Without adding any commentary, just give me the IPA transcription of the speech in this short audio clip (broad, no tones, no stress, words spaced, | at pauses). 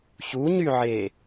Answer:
çuɲyʕe